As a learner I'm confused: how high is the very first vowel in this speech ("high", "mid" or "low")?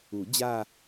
high